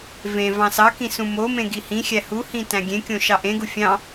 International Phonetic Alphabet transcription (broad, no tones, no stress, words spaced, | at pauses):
vẽ vɑ̃sɑkĩ sũmomẽ ɡihĩxʲæ huhĩ tæ̃ɡʲẽkʲõ ʃɑʔẽɡu fʲɑ̃